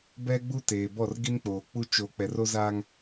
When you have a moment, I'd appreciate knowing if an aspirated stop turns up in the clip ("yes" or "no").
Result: no